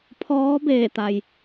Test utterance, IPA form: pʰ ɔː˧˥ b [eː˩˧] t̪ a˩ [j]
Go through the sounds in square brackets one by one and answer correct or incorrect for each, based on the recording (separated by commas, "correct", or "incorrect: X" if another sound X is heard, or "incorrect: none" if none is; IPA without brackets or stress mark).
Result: incorrect: eː˧˩, correct